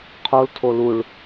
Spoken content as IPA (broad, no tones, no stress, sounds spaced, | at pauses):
qʰ o l tʰ o l u ɭ